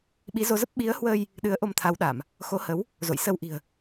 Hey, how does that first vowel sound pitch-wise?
rising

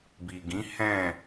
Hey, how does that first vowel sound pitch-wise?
low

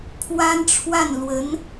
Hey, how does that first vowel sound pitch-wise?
high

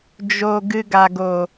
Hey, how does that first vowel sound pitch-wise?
low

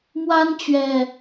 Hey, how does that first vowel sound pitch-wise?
high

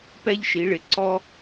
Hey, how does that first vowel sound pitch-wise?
high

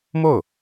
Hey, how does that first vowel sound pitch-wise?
falling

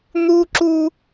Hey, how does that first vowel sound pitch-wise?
high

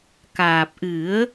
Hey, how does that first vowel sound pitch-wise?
low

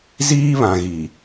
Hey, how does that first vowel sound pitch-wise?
high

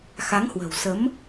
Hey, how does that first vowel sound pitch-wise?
rising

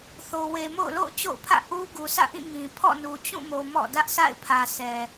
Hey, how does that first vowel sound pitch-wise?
low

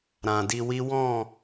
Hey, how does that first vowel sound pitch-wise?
low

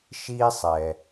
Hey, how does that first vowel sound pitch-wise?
high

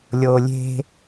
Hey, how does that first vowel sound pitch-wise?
low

